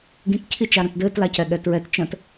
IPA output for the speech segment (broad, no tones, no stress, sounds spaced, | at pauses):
ɡ ĩ t cʰ i t͡ʃ a ɾ ə̃ t d ɘː t l a c ɛ ɠ ɛ t ɹ ɛ t t͡ʃ ə̃ t